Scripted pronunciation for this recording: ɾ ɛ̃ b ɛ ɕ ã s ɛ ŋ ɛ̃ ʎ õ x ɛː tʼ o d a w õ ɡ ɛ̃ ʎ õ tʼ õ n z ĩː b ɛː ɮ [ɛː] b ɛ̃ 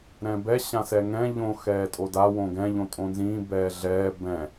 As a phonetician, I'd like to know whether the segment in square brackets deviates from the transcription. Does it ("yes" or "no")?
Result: no